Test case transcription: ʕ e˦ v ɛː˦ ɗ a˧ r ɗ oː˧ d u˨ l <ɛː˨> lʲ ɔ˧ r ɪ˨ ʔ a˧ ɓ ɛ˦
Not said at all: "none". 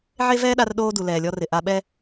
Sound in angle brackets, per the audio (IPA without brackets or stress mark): ɛː˨